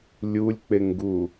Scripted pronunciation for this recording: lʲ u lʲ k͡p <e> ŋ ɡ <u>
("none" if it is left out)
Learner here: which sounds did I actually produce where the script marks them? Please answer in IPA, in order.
e, u

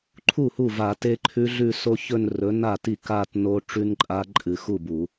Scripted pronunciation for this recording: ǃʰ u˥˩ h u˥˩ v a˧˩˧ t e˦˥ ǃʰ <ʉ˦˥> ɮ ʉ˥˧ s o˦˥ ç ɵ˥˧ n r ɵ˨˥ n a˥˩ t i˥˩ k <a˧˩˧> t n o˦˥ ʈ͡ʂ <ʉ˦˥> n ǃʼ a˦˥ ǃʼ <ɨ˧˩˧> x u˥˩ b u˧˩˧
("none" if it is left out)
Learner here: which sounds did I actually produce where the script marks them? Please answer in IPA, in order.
ʉ˦˥, a˥˧, ʉ˦˥, ɨ˧˩˧

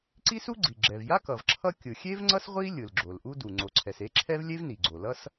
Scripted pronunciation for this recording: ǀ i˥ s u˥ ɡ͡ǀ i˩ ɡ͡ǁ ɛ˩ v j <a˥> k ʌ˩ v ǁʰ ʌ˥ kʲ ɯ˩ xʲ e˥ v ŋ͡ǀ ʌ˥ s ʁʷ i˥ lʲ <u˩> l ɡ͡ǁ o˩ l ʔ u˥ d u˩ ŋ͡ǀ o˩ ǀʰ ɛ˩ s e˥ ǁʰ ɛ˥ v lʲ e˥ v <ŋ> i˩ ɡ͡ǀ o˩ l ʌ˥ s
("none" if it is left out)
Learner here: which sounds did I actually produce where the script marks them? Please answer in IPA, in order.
a˥, ɯ˩, n

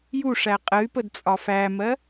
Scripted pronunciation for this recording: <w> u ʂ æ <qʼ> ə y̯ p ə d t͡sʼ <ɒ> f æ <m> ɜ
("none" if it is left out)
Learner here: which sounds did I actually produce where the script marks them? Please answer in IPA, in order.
j, qʼ, ɒ, m

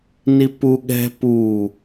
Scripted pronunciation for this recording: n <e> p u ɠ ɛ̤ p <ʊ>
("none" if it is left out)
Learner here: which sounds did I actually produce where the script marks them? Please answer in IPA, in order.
i, u

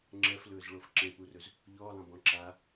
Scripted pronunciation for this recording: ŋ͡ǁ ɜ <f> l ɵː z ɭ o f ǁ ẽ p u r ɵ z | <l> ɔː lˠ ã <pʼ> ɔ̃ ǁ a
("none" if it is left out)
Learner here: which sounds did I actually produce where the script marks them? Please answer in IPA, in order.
f, ʎ, b

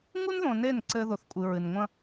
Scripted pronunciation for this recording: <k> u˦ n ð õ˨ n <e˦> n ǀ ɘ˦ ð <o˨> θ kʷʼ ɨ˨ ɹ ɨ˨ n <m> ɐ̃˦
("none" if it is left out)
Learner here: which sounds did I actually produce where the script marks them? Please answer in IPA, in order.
ŋ, e˦˨, o˨, ŋʷ

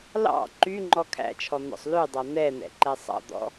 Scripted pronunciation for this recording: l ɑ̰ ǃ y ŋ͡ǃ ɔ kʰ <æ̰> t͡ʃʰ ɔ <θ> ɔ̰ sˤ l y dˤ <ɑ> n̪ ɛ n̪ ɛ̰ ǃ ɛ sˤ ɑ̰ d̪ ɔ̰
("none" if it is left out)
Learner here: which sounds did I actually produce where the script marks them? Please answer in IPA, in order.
æ̰, n̪, ɑ

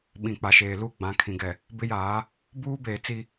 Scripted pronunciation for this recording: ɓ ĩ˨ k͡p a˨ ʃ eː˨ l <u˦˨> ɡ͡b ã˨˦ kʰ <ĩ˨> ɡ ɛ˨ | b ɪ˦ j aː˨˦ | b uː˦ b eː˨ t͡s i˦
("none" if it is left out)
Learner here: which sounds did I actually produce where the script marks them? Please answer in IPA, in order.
u˦˨, ĩ˨

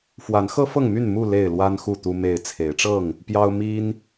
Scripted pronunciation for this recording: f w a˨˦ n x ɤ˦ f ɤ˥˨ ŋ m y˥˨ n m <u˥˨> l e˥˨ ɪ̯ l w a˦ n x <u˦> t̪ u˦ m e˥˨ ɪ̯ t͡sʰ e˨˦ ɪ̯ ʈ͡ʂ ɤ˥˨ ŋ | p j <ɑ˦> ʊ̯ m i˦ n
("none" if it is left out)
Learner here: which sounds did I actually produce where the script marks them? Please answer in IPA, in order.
u˥˨, u˥˨, ɑ˦

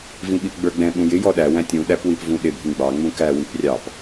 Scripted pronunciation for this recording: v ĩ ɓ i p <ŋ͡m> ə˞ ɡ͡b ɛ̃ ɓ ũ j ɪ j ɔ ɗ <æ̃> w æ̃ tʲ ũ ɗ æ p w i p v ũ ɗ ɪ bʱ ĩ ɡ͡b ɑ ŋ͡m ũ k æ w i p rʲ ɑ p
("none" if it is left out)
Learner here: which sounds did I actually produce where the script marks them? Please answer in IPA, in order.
ɡ͡b, æ

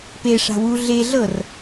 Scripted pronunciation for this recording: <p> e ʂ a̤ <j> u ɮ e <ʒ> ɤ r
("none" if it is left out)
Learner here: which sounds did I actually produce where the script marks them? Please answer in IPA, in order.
p, w, ɮ

